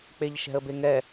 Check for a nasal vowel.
absent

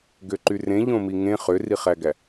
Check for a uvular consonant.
present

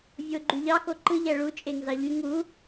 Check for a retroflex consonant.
present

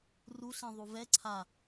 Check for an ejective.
absent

